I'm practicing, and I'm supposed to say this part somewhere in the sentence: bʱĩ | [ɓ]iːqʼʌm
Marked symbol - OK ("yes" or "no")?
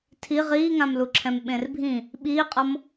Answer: yes